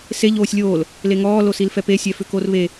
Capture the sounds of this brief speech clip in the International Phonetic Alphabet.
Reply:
s e ʎ oː sʲ lʲ oː l | l e ŋ ɔː l o s i l f ɛ p e sʲ ɛ f ʏ k o r β e

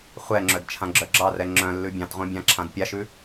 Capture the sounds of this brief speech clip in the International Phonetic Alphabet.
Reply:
χʷ ɛ ŋ͡ǁ œ d t͡ʃʰ ã ɡ͡ǁ œ ɡ͡ǁ ɑ r ɛ ŋ͡ǁ œ̃ lː ʉ bʲ ɑ̃ t ʁʷ œ̃ bʲ ã ǁʰ ã d pʲ a ʃ ʉ

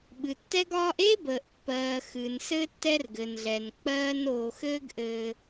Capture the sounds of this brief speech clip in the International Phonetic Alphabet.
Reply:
ɓ ɨ˨ tː ɛ˦ ɡ ɒː˦ ʔ e˦ b əː˨ ʔ pː ɜː˨ x ɨ˨ n s ɘ˦ tː ɛ˦ r ɡ ɘ˨ n ɮ ɛ˨ n k͡p ɜː˦ n oː˧ x ɘː˦ ɡ ʔ ɘː˧

